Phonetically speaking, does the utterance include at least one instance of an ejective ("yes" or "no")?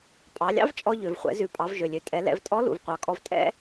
yes